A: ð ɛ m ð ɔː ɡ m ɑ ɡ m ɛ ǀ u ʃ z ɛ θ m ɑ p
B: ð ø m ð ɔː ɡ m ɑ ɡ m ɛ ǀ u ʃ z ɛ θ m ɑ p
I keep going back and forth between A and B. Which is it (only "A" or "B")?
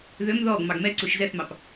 B